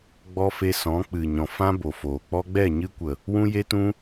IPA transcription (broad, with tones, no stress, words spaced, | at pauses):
ɡ͡bɔ˧ fe˧sɔ̃˨˦k͡pɨ˨ɲɔ̃˨ fã˦bo˨foː˨ k͡pɔ˧ɡ͡bɛ˦˨ɲɨ˧kʷə˨ | wũ˦je˦tũ˦